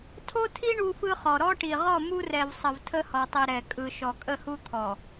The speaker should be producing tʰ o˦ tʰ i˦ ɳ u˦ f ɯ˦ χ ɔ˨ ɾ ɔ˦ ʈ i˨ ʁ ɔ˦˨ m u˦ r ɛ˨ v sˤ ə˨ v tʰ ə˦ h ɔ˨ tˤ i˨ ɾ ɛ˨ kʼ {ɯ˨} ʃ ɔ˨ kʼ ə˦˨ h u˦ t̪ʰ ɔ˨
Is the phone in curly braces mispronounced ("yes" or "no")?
no